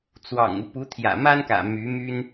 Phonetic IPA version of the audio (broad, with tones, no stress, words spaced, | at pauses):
t͡swɑ̰˨˩ŋu˦pu˧˥ t̪ʰjä̰˨˩ma˥nkä̰˨˩ my˧˥my˥n